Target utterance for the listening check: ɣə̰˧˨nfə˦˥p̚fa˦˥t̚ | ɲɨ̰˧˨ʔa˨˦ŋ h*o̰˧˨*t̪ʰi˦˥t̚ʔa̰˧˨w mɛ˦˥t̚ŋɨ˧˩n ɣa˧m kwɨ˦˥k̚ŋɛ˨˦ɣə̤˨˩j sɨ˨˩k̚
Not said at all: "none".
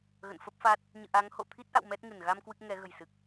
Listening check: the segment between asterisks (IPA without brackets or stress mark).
o̰˧˨